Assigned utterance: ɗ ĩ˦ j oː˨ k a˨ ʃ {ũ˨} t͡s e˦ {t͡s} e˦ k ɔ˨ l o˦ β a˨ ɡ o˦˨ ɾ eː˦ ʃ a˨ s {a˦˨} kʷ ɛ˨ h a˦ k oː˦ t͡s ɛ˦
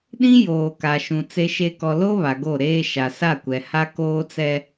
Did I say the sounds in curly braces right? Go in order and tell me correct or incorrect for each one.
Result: correct, incorrect, correct

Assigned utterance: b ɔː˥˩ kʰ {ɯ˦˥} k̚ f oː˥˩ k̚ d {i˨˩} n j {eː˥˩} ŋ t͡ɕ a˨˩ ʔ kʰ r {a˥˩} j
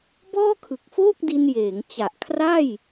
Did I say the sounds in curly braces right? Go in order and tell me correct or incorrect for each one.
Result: incorrect, incorrect, incorrect, correct

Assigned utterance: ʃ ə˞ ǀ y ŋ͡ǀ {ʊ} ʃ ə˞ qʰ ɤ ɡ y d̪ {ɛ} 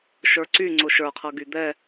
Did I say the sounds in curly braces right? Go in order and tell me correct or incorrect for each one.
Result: correct, correct

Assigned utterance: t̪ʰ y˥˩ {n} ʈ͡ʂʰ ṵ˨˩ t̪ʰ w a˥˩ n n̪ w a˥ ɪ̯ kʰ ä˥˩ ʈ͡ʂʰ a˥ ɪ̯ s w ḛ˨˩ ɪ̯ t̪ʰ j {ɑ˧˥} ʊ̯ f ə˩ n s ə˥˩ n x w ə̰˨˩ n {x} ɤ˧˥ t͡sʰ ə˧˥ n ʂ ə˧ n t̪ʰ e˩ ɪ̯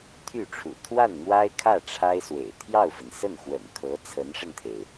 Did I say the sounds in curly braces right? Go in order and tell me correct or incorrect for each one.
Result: incorrect, incorrect, incorrect

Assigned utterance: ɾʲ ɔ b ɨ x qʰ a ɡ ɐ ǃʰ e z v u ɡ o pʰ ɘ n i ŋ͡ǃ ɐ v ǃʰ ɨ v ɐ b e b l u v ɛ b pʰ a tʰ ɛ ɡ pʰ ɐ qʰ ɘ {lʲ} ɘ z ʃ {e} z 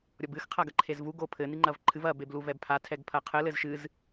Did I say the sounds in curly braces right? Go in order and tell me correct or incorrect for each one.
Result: incorrect, incorrect

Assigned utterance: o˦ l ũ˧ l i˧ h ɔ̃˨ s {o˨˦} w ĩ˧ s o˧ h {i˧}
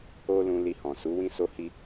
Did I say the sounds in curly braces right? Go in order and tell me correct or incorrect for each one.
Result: incorrect, correct

